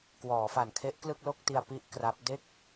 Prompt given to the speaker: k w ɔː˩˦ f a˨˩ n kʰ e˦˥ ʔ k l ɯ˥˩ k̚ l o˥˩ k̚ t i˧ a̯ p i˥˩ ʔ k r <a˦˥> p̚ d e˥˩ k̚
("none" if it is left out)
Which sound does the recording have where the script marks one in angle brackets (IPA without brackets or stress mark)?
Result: a˦˥